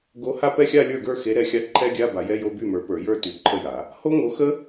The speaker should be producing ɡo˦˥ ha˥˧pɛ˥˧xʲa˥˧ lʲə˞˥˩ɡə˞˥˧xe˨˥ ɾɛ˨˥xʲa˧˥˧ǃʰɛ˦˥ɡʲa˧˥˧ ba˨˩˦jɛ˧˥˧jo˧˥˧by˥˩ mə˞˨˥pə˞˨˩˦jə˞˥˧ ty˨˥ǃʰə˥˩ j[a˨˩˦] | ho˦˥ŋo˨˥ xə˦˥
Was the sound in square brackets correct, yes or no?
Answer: yes